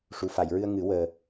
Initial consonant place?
retroflex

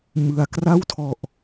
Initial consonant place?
labial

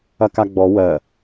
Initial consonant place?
velar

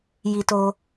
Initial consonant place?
palatal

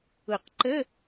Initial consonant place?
uvular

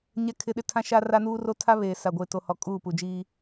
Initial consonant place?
palatal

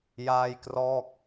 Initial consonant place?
palatal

